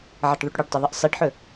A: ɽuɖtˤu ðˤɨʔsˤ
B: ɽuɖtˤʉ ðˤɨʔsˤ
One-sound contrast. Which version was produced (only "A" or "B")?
B